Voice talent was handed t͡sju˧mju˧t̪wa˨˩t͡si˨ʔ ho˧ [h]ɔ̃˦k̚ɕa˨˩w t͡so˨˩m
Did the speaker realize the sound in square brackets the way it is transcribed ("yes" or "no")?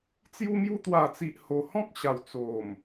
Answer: yes